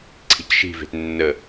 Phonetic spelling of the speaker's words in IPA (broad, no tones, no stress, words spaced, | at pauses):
ǀʰi̤cʃi̤ve̤t nːə